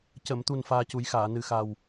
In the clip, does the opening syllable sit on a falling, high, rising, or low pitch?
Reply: low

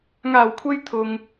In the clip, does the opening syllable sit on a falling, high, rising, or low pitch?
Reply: low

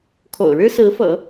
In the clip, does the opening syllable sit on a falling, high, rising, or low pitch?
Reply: low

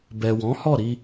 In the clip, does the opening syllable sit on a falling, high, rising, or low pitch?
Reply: low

